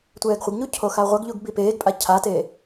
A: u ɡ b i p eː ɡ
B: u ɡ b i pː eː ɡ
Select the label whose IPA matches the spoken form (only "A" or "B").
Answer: A